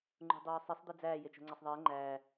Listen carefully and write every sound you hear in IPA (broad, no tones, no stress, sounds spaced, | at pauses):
ŋ͡ǃ ṳ dˤ oː sˤ e sˤ d̪ e d͡z æː j e t͡ʃ o̤ ŋ͡ǀ e sˤ ðˤ eː ŋ͡ǃ æː